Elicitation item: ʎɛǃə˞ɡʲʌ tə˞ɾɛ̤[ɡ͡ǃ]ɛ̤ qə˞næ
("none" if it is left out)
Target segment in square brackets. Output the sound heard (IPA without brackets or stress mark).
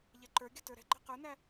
ɡ͡ǃ